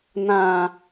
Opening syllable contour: low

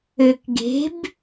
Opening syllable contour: low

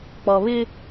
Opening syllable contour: low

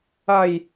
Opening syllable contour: low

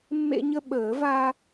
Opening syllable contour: high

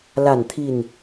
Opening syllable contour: falling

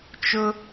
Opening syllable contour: high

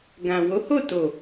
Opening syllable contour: low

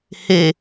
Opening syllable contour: low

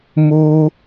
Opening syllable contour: high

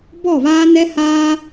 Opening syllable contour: falling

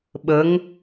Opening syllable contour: rising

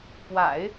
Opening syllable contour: low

